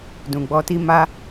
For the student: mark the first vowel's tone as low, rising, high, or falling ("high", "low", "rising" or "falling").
low